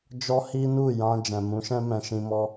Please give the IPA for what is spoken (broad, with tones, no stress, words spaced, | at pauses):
d͡ʒɔ˦ hi˦nu˦˨jã˧ d͡ʒɛ̃˨mũ˨˦ʃɛ̃˦ mɛ̃˧ʃĩ˧ mɔ˧